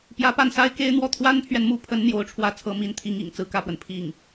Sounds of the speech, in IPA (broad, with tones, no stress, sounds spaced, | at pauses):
p j ä˧˥ p a˥˩ n s a˥ ɪ̯ k e˥ ɪ̯ n̪ w ɔ˥˩ t̪ʰ w a˥ n pʰ ɥ ɛ˨ n m u˥˩ pʰ ə˧˥ n n̪ j o˧˥ ʊ̯ ʈ͡ʂʰ w ä˥˩ t͡sʰ ɤ˧˥ m i˧˥ n t̪ʰ i˧˥ ŋ ḭ˨˩ ŋ t͡s ɹ̩˥ k ä˥˩ p w ə˩ n pʰ i˥˩ ŋ